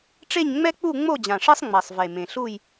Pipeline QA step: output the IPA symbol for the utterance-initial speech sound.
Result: ʈ͡ʂ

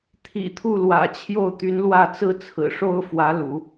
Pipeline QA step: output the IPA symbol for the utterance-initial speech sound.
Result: t̪ʰ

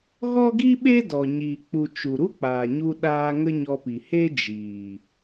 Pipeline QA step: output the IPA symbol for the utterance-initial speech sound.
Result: ɣ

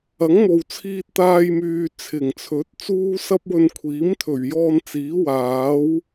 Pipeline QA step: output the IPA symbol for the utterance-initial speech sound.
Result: ɐ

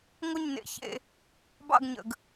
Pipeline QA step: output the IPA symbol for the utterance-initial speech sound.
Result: ŋʷ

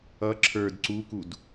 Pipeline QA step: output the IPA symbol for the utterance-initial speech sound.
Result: ʌ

